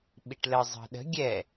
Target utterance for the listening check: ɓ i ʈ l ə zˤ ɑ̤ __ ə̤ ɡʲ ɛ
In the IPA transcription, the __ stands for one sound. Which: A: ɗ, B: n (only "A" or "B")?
A